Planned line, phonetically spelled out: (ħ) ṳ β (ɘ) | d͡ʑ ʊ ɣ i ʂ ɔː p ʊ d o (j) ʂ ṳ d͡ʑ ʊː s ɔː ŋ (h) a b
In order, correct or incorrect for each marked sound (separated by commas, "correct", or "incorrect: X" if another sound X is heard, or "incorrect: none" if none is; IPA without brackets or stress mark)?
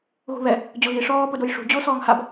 incorrect: ɣ, incorrect: ɛ, correct, correct